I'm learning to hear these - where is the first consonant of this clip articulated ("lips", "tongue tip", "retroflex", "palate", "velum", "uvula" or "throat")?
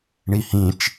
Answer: retroflex